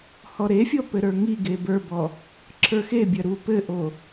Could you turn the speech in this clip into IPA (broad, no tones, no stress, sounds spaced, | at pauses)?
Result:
h ɔ ɾ e fʲ ɔ p ɘ ɾ ə˞ ŋ i ɡ e b ə˞ b ɔ | ǁʰ ə˞ x e bʲ ɐ ɾ u p ɘ ʔ o